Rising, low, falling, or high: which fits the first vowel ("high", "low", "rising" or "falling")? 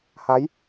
rising